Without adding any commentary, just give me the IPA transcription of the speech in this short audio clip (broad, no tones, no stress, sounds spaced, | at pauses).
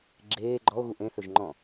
ɡ͡ǁ eː ɡ͡ǃ ɔ o̯ ɣ u ʔ ẽ θ ɵ ʒ ŋ͡ǃ ɔ̃